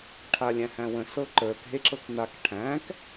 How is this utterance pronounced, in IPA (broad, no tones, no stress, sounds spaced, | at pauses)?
ʈʰ a lʲ æ̃ h æ̃ w ə̃ s ɤ ǃ ə˞ k ɦ e ǁ ɤ k n a k ʈʰ æ̃ k